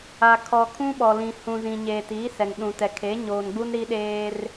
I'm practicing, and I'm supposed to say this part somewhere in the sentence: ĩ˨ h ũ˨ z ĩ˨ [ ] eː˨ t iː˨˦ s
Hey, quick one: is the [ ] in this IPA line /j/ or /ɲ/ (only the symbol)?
ɲ